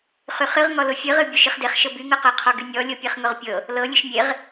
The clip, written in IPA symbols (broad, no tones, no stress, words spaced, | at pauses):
χyχɨʁ ŋɔlʊfʲɨʁɨ bʲʊʃɨχdeχʃɤ byŋɤqɤ qʰɔɡynʲɔ lʲɤpʲeχŋʊʁpʲɤ | lɤ lʲɨʃmʲeʁ